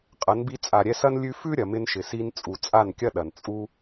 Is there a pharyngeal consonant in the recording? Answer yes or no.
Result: no